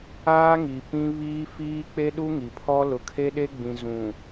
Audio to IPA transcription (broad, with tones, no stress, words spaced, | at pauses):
aː˦ŋi˨ pĩ˦ βiː˦fiː˦ k͡pe˦ɗu˦ŋi˨pʰɔ˦ lʊ˨kʰe˦ɗe˦ɡ͡bĩ˨ zũ˨